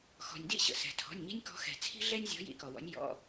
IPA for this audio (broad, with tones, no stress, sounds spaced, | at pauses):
x ɔ̤˩ nʲ d ḭ˥˩ ɕ ə̰˩ s ɛ̤˩ tʰ ɔ̤˩˧˩ nʲ ɲ i̤˦ nʲ k ɔ̤˨˦ x ɛ̤˩ t͡sʰ i̤˦ ɮ ɛ˦ nʲ zʲ ɔ̤˨˦ j ḭ˨˦ k ɔ˩ w ɔ̰˨˦ nʲ j ɔ̰˩˧˩